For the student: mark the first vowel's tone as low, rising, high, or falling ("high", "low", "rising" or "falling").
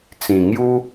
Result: low